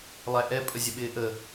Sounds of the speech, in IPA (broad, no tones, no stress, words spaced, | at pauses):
lˠæʔɛ pʼəzʲəɓɪːʔə